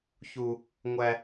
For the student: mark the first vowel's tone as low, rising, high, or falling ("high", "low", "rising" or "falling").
high